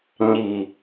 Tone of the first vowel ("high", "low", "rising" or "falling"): low